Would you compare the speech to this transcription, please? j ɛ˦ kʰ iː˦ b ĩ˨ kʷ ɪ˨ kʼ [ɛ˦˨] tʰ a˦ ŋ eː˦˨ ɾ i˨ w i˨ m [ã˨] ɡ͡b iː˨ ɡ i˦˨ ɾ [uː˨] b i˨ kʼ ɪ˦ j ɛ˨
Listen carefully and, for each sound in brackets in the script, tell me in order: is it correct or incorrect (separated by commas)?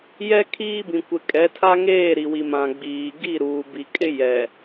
incorrect, correct, correct